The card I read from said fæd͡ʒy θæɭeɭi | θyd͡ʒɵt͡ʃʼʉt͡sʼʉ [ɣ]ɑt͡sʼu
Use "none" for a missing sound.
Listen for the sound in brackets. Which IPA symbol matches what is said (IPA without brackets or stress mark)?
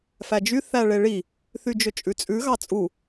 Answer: ɣ